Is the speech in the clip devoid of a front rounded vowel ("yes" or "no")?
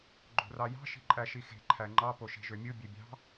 no